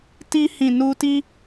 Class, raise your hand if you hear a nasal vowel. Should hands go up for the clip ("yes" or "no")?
yes